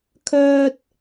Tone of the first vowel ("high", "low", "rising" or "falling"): low